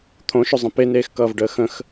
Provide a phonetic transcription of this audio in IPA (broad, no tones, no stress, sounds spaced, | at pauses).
t̪ʰ õ ʃ ɵ zˤ ə̃ p e n eː x k ʌː v ɖ əː x ə̃ x